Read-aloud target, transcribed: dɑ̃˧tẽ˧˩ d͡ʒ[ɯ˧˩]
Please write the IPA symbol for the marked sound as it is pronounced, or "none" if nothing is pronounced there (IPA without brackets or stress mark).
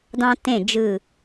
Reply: ɯ˧˩